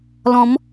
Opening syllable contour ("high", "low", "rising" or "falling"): rising